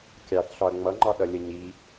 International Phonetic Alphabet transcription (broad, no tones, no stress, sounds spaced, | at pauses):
kʲ ɑ θ ɬ ɒ ɐ̯ ŋ͡m ʌ ŋ͡ǃ ɒ ɗ ʌ lʲ ə ɲ i